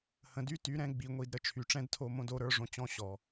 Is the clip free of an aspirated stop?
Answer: no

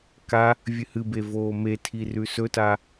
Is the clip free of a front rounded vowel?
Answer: yes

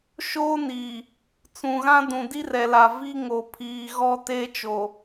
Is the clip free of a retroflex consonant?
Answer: yes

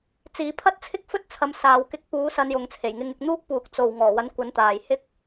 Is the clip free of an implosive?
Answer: yes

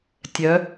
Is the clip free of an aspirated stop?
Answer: yes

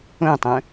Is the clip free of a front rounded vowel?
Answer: no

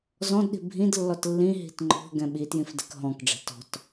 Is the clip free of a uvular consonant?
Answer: yes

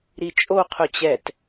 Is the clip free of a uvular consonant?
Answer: no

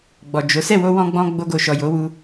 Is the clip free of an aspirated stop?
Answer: yes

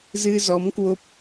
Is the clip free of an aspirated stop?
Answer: yes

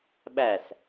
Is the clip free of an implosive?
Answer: no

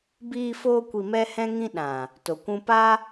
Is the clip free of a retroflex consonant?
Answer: yes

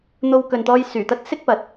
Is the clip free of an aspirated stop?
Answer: yes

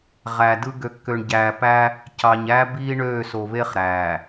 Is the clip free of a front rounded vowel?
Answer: no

